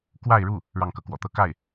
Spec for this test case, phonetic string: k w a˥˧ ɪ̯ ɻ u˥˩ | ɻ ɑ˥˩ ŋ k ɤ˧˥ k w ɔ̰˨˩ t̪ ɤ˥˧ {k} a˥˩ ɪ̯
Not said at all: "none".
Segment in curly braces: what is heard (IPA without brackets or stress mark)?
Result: k